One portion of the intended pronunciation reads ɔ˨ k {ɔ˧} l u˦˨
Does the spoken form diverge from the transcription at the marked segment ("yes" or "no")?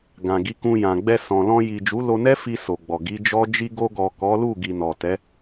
yes